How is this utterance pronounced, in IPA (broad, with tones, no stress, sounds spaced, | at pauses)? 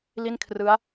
l i˥˩ n kʰ r ɯ˦˥ a̯